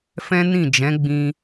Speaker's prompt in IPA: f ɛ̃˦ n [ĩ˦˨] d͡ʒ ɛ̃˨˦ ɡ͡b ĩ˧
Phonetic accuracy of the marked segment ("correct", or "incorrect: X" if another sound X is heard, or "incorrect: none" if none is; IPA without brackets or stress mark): correct